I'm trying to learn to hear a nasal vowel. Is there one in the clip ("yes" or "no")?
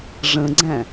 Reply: yes